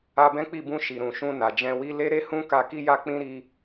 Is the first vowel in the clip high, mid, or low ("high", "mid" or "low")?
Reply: low